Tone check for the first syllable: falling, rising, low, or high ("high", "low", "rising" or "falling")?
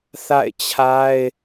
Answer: falling